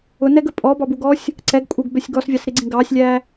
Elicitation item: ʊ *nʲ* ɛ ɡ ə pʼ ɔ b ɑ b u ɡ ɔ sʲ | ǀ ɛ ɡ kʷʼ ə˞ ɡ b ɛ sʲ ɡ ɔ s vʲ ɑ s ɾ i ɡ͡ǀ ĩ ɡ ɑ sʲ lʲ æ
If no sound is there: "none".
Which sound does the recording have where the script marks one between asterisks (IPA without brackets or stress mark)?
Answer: n